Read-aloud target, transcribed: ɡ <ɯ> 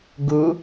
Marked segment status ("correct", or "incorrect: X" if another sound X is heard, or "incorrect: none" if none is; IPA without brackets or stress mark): incorrect: u